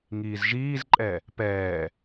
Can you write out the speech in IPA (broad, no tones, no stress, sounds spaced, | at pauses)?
ŋ iː z ʒ iː z ǃʼ ɛ | p ɛː